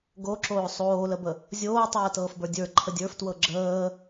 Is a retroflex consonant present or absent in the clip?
absent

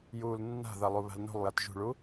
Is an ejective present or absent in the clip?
absent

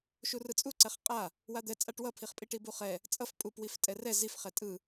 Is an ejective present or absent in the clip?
present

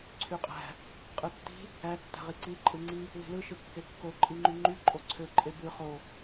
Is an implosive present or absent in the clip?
absent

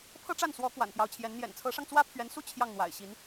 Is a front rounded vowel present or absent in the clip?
absent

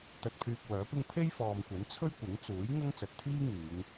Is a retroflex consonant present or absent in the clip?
absent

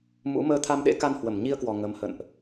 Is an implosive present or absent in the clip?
present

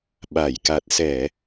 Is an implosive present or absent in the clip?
present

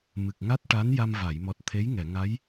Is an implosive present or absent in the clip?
absent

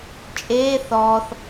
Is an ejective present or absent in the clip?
present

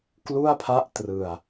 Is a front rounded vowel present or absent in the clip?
absent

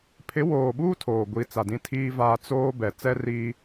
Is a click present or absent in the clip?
absent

